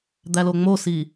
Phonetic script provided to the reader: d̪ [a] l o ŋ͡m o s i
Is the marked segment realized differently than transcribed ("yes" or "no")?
yes